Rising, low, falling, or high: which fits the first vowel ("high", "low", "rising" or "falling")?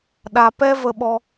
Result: low